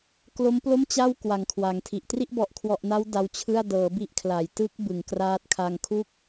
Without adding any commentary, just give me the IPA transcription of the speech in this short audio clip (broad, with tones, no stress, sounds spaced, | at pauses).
k l o˦˥ m p l o˥˩ m t͡ɕ a˥˩ w k w a˨˩ ŋ kʰ w a˩˦ ŋ tʰ i˨˩ ʔ t r i˥˩ ʔ b ɔ˨˩ ʔ kʰ w ɔ˨˩ ʔ n a˦˥ w d a˦˥ w t͡ɕʰ ɯ˥˩ a̯ d ɤː˩˦ b i˦˥ ʔ kʰ l a˩˦ j t ɯ˦˥ k̚ b ɯ˩˦ ŋ k r aː˦˥ t̚ kʰ a˧ ŋ kʰ u˥˩ k̚